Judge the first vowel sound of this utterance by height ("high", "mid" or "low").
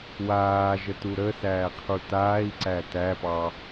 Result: low